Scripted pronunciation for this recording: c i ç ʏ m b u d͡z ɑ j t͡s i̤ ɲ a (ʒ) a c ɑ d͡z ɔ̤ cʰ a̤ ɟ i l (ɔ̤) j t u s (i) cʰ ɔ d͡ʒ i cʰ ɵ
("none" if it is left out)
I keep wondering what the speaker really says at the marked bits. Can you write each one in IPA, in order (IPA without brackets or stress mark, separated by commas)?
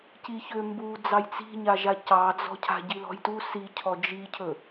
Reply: ʒ, ɔ̤, i